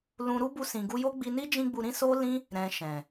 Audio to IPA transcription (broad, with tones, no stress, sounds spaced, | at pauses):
l ũ˧ ɾ u˦ b u˧ s ĩ˨ ɡ u˧ j o˦ ɡ͡b i˧ n i˦ d͡ʒ ĩ˦ ɡ͡b u˧ ɾ ĩ˦ s o˦ l ĩ˦ | ɾ ɛ̃˨ ʃ ɛ̃˨